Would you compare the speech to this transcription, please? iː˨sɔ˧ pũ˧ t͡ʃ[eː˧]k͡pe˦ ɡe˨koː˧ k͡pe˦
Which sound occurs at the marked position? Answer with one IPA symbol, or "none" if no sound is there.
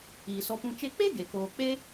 e˧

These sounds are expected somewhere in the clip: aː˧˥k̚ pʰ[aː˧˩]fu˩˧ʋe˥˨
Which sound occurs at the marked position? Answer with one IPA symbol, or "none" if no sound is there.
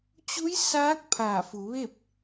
aː˧˩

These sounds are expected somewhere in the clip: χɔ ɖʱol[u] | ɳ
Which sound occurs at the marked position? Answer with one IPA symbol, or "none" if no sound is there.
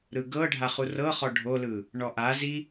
ɯ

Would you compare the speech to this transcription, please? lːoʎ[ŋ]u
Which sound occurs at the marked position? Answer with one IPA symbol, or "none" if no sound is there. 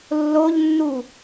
nː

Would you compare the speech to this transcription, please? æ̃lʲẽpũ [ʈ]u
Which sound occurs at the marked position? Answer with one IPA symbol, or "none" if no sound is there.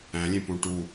ʈ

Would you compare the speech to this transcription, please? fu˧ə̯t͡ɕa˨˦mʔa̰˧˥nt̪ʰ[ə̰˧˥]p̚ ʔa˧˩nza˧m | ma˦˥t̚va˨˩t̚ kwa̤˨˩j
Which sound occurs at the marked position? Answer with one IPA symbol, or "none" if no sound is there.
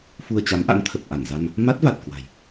ə˨˩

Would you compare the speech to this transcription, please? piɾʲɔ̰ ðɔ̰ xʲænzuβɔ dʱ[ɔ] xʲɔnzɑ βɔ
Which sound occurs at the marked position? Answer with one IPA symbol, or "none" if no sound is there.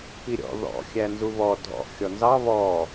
ɔ̰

